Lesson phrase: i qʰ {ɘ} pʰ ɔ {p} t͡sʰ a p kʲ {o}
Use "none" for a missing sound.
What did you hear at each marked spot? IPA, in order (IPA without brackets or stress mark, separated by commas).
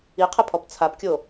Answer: ɘ, p, o